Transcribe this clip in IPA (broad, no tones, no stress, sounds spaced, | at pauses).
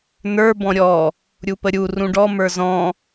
n ə˞ b ɔ̃ ɾʲ ɔ | ɾʲ u p ə ɾʲ u r ũ ɖ ɔ m ə˞ z ɔ̃